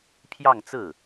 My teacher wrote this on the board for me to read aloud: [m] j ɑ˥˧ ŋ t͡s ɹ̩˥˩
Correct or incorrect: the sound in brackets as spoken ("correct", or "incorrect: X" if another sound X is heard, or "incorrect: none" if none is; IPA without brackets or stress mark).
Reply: incorrect: pʰ